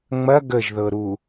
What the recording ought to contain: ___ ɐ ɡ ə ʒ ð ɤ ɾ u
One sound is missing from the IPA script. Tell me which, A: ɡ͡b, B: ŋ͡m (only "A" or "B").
B